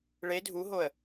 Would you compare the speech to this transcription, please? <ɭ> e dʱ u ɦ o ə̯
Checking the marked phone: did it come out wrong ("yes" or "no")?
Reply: no